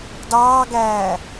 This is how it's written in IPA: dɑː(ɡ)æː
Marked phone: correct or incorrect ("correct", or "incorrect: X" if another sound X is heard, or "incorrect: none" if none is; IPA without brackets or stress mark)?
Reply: correct